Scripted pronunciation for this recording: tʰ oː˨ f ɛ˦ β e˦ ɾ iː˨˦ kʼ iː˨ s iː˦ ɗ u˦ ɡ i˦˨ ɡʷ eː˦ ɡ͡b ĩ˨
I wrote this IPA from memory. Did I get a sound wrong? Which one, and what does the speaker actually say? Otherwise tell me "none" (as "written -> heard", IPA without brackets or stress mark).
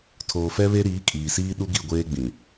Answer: none